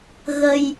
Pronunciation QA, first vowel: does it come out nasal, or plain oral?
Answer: oral